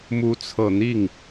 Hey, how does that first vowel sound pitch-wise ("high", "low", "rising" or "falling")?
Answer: rising